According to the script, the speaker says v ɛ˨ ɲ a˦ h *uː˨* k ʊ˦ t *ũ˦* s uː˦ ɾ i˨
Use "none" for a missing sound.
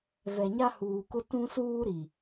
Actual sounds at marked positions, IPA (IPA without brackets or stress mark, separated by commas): uː˨, ũ˦